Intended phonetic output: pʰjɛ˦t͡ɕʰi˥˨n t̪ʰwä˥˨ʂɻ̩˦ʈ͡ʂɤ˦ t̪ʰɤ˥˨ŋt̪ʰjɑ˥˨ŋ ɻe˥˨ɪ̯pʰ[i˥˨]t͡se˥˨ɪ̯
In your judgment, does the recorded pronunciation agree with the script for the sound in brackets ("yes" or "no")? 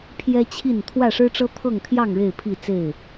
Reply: yes